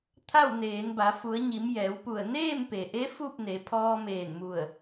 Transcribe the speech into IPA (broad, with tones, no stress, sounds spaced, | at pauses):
t̪ʰ a˥˨ w n eː˩˧ n b a˩˧ f u˩˧ ə̯ ɲ i˩˧ m j ɛː˩˧ w p u˧˩ ə̯ n eː˥˨ m p e˩ ʔ e˧˥ f u˥˨ p̚ n e˩˧ pʰ ɔː˧ m eː˧˩ n m u˧˩ ə̯